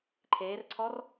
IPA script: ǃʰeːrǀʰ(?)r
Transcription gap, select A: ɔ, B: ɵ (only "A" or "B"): A